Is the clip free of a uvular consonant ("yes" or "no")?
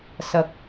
yes